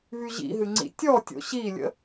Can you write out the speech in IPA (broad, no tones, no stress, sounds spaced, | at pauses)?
v y ʑ ḭ ɦ ɨ ŋ͡ǀ ḭ tʲ ɔ tʲ o̰ ɕ i lʲ ə̰